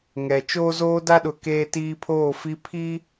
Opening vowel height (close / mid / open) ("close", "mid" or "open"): mid